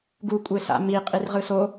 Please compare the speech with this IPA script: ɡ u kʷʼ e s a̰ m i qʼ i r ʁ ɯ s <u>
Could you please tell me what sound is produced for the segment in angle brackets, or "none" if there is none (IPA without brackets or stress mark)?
o